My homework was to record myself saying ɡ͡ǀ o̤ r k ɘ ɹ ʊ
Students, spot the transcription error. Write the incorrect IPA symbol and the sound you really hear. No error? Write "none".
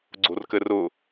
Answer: ɹ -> r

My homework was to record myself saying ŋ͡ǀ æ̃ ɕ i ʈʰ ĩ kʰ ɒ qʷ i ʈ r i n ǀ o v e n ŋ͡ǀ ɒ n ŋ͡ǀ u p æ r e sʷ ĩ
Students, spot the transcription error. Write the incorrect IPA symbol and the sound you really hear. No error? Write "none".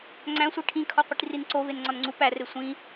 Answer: ɕ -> sʷ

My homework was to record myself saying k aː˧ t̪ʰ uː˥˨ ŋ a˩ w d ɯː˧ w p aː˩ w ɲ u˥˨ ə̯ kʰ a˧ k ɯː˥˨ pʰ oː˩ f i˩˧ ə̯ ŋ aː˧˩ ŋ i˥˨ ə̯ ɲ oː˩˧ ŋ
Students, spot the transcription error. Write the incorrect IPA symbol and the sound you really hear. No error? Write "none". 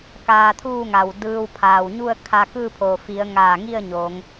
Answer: p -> pʰ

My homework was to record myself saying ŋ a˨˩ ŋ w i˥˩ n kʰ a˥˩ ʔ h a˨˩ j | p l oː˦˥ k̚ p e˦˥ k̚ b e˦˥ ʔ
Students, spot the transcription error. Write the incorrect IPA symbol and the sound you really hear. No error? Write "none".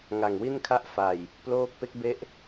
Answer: h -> f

